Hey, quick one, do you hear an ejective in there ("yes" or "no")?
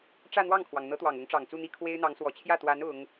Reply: no